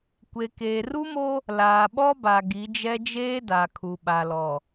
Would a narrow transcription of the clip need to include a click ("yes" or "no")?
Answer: no